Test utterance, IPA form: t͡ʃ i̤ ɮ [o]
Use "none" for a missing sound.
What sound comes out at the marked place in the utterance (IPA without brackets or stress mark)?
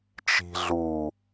u